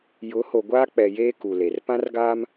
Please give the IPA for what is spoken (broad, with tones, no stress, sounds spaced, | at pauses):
j ʊ˨˦ h o˨ ɡʷ aː˦ k͡p ɛ˨ j eː˦ k u˨ l e˨ r p ã˦ r ɡ aː˦ m